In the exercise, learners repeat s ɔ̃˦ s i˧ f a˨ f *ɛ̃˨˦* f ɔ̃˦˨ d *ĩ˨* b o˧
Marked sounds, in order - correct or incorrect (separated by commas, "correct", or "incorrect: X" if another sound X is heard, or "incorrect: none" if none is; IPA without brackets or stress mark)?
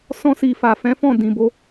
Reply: correct, correct